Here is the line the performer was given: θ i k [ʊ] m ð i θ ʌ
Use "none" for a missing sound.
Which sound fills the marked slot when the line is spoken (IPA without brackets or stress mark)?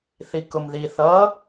ʊ